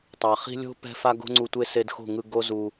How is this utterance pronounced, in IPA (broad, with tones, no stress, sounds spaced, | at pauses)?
tˤ a˨ χ i̤˦ lʲ o̤˦ p ɛ̤˦ f a˦ ɡ o̤˦ ŋ͡ǀ u˧ tʷ e˦ s e˧ d x o̤˦˨ ŋ ɯ˧ ɡ o˦ z u˧